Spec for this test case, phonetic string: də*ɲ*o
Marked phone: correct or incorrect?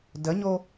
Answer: correct